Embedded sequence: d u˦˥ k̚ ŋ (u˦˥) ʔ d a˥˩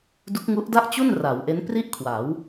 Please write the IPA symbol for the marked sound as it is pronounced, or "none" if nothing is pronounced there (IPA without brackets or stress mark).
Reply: u˦˥